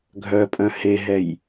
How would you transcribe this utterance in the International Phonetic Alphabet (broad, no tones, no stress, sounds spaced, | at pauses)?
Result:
ɡʱ œ pʼ œ̃ h e ɦ ɛ j